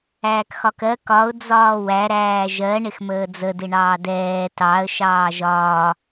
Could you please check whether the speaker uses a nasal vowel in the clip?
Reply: no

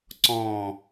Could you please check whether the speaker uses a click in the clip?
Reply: yes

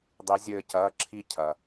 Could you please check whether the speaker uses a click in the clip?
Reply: yes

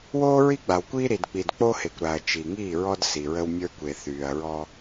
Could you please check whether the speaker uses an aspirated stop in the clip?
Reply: no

